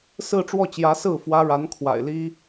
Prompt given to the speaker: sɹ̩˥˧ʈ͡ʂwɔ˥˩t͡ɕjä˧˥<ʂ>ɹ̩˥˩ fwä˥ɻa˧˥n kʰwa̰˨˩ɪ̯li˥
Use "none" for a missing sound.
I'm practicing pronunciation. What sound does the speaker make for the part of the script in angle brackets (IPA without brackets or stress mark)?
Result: s